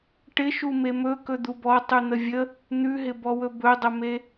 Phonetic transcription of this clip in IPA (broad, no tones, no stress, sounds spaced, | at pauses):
ʈ ɪ ʃ u m e m ɵ k ɵ d̪ u b ɔ tˤ ʉ n̪ ə vʲ ə | n̪ ʉ ɦ ɪ b ɔ w ɵ b ɵ dˤ ə m e